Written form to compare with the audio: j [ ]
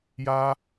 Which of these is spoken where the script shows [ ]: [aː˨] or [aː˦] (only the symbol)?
aː˦